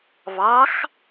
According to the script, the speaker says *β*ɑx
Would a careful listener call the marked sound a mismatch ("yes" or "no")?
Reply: no